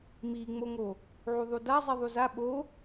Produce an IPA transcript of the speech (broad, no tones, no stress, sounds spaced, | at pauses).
m i ŋ͡m o ŋ o | ʕ u ðˤ u d a zˤ i ðˤ u z a ɓ o